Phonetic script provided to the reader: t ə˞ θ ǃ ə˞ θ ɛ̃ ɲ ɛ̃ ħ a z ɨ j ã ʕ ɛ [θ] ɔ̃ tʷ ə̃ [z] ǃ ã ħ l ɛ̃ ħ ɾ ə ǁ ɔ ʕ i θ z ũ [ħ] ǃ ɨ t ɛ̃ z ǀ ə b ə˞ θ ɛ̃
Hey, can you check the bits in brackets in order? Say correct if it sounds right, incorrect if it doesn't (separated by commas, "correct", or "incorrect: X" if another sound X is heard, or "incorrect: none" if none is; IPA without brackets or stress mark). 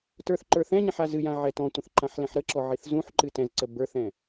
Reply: incorrect: t, incorrect: θ, correct